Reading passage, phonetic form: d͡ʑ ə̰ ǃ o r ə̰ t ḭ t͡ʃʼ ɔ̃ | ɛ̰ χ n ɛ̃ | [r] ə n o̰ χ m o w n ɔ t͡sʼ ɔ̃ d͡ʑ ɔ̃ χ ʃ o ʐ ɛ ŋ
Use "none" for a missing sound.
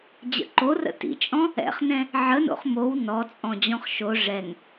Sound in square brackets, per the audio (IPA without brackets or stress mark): ʕ